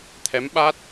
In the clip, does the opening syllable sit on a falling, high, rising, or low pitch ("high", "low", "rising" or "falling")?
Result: rising